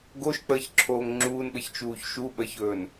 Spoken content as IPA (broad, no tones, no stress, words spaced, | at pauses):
ɡoʃk͡pəːçǁʰoːŋ ŋ͡ǁuːnɓəçt͡ʃuːç ʃuɓəçɵːn